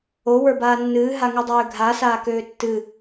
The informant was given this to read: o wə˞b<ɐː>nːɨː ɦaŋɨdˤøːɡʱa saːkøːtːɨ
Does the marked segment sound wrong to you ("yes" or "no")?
yes